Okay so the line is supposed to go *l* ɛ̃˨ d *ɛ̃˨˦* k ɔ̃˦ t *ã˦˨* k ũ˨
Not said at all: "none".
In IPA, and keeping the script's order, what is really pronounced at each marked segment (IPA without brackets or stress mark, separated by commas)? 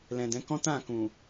l, ɛ̃˨˦, ã˦˨